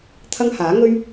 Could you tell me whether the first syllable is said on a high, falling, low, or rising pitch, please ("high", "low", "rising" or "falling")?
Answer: high